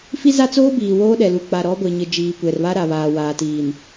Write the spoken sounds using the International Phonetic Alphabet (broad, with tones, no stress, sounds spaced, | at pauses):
f i˦ z a˦ t͡s oː˦ b iː˨ w oː˦ ɗ ɛ˨ l u˨ k͡p a˨ ɾ ɔ˨˦ ɡʷ e˨ ɲ ɪ˨ d͡ʒ iː˨ kʷ ɛ˨ r β a˦ ɾ a˨ β aː˨ w aː˨ t iː˨ n